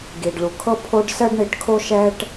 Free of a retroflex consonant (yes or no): no